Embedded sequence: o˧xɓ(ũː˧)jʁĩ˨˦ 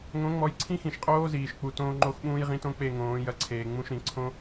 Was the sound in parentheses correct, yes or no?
yes